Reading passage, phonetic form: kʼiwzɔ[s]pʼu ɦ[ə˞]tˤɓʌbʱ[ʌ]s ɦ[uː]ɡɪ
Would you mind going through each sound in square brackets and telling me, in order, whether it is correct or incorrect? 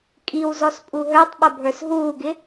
correct, correct, incorrect: ə˞, correct

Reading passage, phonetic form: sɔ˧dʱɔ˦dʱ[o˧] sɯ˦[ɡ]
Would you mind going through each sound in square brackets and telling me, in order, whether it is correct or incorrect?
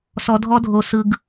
correct, correct

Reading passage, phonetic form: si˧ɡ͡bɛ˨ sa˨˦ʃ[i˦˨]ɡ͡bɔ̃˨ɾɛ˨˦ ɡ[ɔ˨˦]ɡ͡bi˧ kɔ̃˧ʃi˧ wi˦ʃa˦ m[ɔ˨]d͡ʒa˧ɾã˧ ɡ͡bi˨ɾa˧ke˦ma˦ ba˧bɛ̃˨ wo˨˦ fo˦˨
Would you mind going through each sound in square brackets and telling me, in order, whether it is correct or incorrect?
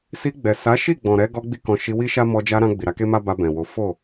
correct, incorrect: ɔ˧, incorrect: ɔ˧

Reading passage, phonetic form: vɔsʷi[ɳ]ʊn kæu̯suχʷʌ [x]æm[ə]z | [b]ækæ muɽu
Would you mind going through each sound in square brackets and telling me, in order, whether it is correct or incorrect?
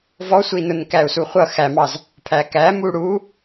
incorrect: n, correct, incorrect: ɑ, incorrect: pʰ

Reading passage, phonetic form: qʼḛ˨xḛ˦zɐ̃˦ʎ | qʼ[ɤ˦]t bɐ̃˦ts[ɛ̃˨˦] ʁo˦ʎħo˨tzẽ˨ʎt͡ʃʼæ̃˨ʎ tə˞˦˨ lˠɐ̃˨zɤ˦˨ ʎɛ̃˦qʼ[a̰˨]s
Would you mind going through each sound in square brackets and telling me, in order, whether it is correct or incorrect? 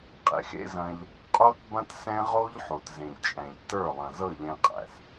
incorrect: o˦, incorrect: ɛ̃˦, incorrect: æ̰˨

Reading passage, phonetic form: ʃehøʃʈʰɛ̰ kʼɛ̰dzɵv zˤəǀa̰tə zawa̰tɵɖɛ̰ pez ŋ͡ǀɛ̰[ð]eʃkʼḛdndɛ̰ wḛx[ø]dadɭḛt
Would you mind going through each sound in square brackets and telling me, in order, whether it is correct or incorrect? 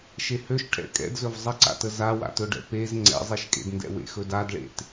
incorrect: zˤ, incorrect: ɵ

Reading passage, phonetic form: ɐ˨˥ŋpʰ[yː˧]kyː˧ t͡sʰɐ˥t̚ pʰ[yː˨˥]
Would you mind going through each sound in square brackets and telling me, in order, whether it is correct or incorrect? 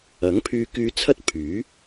correct, correct

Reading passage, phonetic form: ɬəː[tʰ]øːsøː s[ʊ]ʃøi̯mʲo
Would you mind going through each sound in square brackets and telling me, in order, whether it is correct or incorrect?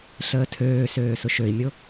correct, correct

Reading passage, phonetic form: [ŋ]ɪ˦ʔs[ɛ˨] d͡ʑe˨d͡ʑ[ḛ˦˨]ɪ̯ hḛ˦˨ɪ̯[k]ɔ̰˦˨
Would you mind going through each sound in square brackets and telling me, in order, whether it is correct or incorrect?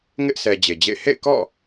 correct, correct, correct, correct

